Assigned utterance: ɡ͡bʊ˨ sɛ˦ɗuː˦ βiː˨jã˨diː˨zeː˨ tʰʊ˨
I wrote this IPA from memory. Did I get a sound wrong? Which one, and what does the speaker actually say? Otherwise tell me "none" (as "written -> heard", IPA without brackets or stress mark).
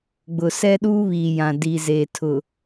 none